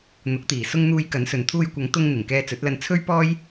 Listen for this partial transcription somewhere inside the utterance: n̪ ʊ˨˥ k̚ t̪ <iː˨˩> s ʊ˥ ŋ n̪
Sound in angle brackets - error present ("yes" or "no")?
no